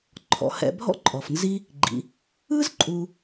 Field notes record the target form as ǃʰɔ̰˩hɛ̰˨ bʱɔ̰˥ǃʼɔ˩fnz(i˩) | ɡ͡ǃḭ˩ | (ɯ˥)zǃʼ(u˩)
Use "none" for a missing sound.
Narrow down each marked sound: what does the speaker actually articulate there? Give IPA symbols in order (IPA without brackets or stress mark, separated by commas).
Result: i˦, ɯ˥, u˨